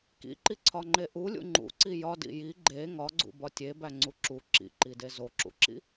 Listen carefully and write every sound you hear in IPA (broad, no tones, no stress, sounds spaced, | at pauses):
k ḭ ǃ i ǀʰ ɒ ŋ͡ǃ e ʔ u lʲ ṵ ŋ͡ǃ ṵ ǀ i j ɒ d ḭ j i ɡ͡ǃ e ŋ ɒ ɡ͡ǀ ṵ b ɒ tʲ e b æ ŋ͡ǀ u ǁ u ǁ ḭ ǃ i d e z o ǁ ṵ ǁ ḭ